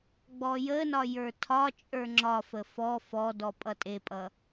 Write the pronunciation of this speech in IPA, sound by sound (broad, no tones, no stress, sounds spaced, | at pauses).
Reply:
ɡ͡b ɔ j ə n ɒ j ə˞ tʰ ɒ t͡ʃʼ ə˞ ŋ͡ǁ ɒ f ə f ɔ f ɔ d ɔ pʼ ʌ tʼ e pʼ ʌ